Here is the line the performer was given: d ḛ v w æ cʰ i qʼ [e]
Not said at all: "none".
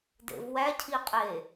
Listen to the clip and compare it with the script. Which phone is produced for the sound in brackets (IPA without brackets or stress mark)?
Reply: e